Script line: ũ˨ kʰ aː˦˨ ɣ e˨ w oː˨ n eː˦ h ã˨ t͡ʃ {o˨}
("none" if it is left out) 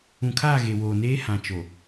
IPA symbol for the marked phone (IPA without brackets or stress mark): o˨